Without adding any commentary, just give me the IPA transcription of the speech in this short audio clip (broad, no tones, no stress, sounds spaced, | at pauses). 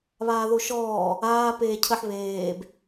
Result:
β aː ð o ʃ ɔː | aː p eː cʰ ə ħ β eː b